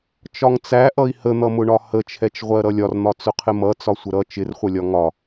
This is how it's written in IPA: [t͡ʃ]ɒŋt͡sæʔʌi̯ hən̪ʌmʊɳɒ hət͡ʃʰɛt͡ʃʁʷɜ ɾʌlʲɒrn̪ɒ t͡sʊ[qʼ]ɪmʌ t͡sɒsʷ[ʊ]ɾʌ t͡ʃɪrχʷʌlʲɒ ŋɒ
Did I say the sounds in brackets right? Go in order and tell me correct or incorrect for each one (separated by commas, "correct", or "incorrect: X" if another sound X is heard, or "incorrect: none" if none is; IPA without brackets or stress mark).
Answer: correct, incorrect: qʰ, incorrect: ə